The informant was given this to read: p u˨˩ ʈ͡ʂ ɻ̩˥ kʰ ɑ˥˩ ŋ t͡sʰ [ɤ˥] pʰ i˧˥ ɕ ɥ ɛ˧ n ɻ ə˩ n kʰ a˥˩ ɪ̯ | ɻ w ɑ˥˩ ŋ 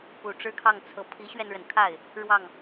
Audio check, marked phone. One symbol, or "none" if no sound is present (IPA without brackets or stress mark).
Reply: ɤ˧˥